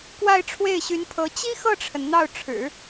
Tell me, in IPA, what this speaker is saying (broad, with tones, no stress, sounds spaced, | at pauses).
k w a˥˧ ɪ̯ ʈ͡ʂʰ w e˥˩ ɪ̯ ɕ y˧˥ n pʰ ɤ˧˥ t͡ɕ i˥ x ɤ˥˩ ʈ͡ʂʰ ə˩ n n̪ ɑ˥˩ ʊ̯ ʈ͡ʂʰ ɻ̩˨˩˦